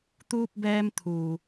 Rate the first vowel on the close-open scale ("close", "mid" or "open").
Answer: close